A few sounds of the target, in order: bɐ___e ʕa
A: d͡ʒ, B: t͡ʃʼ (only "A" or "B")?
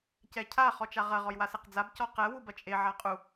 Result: B